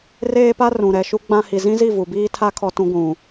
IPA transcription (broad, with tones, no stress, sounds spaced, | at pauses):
r eː˦ p a˦ r ũ˨ ɾ ɛ˨ ʃ u˦ ɡ͡b ã˦ h i˨ z ĩ˦ z i˦˨ v u˨ b iː˦ tʰ a˦ kʰ ɔ˦ t ũ˦ ɡʷ ũ˨